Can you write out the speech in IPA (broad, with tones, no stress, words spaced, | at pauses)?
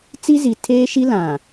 t͡si˦zi˨ tʰeː˦ʃi˦ lã˨